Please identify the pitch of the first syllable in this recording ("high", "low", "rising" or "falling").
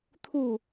falling